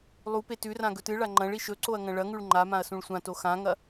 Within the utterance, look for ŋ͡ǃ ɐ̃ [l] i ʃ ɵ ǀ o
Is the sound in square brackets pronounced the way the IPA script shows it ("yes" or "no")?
no